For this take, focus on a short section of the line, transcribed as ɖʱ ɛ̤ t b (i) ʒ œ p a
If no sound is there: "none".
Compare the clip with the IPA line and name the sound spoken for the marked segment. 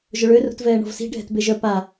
e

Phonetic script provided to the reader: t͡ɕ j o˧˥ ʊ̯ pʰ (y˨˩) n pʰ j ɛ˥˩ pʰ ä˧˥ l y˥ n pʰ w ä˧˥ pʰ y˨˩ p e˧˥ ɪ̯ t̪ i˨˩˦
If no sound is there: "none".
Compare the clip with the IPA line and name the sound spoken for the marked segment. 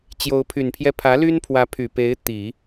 y˨˩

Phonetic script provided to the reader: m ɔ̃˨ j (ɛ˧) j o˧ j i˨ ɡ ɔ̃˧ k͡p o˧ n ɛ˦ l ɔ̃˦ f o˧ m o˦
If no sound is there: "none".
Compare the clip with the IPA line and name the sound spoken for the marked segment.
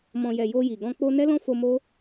ɛ˨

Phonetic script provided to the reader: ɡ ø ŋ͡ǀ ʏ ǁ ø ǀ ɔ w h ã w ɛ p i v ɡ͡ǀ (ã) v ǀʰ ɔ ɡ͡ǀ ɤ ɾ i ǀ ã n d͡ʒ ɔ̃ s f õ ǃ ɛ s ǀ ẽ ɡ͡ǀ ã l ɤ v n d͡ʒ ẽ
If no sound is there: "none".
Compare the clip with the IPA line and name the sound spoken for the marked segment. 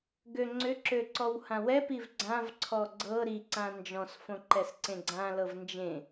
ã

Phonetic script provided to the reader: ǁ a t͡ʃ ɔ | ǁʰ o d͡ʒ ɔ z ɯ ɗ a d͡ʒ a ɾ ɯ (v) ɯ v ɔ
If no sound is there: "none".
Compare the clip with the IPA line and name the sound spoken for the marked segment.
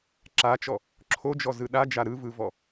v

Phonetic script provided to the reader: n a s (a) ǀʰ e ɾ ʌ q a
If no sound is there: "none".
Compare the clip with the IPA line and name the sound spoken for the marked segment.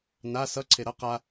ʌ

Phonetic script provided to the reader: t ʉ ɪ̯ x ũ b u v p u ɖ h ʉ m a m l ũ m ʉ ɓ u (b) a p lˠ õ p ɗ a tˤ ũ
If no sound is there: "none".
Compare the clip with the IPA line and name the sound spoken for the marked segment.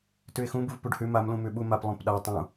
m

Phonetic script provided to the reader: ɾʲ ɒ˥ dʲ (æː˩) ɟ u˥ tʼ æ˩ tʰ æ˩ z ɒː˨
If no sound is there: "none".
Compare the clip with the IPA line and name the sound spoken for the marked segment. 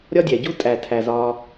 æ˩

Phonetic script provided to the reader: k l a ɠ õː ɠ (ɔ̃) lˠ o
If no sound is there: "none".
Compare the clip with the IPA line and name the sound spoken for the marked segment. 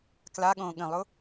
ə̃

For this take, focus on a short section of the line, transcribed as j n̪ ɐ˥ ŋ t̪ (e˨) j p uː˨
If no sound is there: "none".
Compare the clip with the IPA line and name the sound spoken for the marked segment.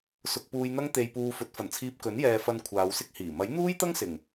e˨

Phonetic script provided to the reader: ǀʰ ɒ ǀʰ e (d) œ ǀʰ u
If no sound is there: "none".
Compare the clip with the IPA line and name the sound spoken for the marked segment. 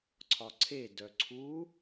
d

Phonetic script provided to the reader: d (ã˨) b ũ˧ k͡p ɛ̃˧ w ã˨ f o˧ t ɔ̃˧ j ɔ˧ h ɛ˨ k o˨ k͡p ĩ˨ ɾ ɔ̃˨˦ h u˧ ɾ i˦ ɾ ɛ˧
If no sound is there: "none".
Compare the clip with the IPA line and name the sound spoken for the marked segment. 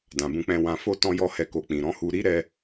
ã˨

